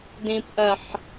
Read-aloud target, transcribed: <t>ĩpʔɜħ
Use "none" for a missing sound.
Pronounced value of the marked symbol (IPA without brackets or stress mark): d